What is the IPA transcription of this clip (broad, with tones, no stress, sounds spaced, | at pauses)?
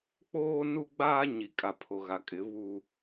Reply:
k͡p oː˦ n u˦ ɡ͡b aː˦ ɲ i˨ kʼ a˨ pʰ o˨ ɣ a˨ kʼ ɪ˨˦ β u˦